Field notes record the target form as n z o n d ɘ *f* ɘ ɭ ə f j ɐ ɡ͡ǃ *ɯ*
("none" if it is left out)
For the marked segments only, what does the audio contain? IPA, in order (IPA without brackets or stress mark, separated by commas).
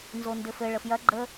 f, ə